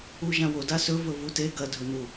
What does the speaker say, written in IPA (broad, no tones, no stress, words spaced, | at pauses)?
uʒãwo dasɵ vɵvute ɡɐ dʱɵnu